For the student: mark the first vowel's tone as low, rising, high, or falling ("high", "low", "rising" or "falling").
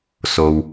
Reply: low